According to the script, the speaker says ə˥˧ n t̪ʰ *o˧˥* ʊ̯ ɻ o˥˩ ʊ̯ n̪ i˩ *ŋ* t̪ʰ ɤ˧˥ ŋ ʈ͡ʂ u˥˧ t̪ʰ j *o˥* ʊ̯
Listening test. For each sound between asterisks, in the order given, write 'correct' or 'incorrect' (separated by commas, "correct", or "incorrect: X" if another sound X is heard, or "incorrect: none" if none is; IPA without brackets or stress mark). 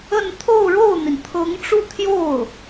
incorrect: o˥˧, incorrect: n, incorrect: o˥˩